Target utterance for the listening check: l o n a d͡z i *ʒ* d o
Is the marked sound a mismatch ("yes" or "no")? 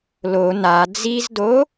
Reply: yes